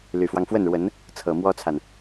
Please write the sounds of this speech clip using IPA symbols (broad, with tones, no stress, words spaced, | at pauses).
ly˨˩fwɑ˦ŋ fwə˥˩nɻwə˧˥n | t͡sʰɤ˨˩mwɔ˥t͡sʰa˨n